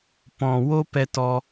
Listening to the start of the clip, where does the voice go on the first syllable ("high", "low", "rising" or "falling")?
low